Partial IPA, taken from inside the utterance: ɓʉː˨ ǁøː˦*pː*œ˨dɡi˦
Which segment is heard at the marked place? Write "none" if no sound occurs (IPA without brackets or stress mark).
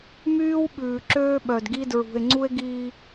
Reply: ɓ